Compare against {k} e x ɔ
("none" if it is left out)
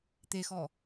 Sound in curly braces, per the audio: t̪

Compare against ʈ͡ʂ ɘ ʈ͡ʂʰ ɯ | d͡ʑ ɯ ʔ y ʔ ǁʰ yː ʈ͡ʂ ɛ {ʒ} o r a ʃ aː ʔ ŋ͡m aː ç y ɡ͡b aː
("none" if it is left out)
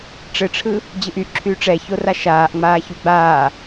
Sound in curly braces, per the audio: ç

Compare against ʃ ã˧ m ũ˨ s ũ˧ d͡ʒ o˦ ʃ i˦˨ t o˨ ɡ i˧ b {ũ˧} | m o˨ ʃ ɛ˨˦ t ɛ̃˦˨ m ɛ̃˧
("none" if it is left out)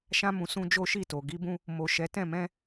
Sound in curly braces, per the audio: ũ˧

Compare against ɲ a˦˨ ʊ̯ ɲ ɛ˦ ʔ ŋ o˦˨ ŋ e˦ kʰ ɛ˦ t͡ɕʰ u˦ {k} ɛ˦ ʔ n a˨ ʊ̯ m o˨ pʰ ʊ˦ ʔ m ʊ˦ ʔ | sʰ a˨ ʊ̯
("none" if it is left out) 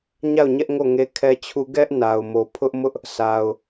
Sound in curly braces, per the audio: ɡ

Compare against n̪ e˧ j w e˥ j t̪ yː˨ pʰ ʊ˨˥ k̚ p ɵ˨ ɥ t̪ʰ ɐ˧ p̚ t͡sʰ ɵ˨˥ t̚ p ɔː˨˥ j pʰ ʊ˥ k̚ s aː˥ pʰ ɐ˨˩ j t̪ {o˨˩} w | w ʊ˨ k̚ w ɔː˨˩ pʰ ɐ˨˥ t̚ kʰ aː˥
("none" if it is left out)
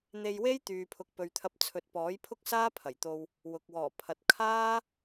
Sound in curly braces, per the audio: o˧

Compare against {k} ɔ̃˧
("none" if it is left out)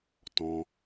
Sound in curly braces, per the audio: t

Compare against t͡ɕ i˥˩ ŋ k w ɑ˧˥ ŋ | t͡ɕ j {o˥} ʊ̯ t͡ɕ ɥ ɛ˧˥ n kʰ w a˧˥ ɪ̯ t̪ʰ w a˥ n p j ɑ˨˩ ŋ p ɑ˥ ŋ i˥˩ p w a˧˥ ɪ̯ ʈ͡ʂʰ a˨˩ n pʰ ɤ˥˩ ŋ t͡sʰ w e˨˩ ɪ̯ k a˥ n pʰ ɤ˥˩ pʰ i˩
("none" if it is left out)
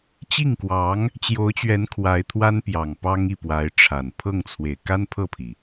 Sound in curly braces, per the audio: o˧˥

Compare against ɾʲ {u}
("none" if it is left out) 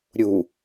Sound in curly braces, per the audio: u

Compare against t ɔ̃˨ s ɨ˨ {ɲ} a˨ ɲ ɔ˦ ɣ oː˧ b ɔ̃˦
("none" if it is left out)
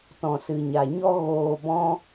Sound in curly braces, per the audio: ɲ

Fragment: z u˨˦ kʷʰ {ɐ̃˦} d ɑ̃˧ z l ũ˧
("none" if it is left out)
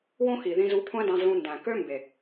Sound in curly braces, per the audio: æ̃˦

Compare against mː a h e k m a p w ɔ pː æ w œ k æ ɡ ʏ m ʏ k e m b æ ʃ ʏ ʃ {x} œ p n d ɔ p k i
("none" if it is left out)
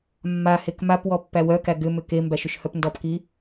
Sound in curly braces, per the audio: h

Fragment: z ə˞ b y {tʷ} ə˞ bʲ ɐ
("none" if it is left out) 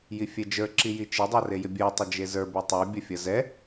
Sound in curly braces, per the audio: tˤ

